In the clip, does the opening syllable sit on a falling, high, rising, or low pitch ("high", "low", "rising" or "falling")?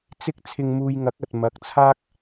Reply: high